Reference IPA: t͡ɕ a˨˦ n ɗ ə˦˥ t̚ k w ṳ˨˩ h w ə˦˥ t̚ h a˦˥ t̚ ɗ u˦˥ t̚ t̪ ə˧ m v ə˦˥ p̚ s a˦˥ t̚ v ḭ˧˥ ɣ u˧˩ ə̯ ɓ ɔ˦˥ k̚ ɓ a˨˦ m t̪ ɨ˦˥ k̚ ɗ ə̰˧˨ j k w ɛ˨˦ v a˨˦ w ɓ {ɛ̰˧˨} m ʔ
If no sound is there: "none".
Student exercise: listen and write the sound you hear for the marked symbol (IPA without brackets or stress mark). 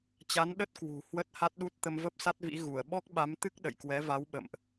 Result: ə̰˧˨